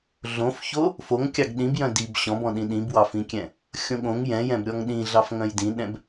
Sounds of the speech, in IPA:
ɮõfço | foŋkʲɑɡ ɗĩbjœ̃ dib ɕɔ̃bɔ̃ɗĩ ɗĩbwɑfĩkʲɛ̃ | xʲõɠõŋ jɛ̃jɛ̃b ɾʲɔŋɗĩ ɮɑfŋœ̃jdĩɗɛ̃b

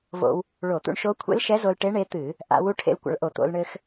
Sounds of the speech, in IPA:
vo̰˧w | ɭo˧˩˧t̪ṵ˧ɳʃo˧˥ kʷʰḛ˧˥lʃɛ˧˥zo˧lʈe˧˥ ɳe˧˥t̪ɨ˧˩˧ | ʔa̰˧wu˧˥ ʈʰḛ˧l kʷa̰˧ɭʔo˧˩˧t̪o̰˧lɳɘ˧x

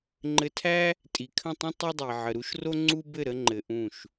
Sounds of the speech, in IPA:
ŋ͡ǃɘ˧tʰæ˦ | tʼi˨kʰə̃˦˨tˤə̃˦ tˤɘ˦dˤi˨ ʕə˨ɾu˦ʃro˦ ŋ͡ǀu˦ bɘ˦˨ɾə˧ ŋ͡ǃɘ˨ ʔũ˦˨ʃ

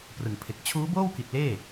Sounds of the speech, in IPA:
prɯ˨˩ŋpʰe˨˩k̚ t͡ɕʰuː˦˥boː˥˩wki˨˩t̚ leː˥˩

